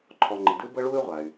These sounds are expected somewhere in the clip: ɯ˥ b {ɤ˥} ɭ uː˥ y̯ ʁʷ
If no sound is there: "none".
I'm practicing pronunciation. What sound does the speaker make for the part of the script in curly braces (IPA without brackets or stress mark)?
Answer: ɤ˥